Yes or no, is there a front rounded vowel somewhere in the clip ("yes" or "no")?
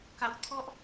no